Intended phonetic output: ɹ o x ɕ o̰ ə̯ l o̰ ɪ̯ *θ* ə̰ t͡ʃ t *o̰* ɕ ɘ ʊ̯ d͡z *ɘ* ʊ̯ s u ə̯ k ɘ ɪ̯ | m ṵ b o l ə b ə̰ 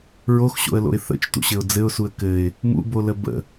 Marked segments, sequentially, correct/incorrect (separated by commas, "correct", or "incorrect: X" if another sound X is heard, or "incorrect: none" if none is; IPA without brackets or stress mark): correct, incorrect: ṵ, correct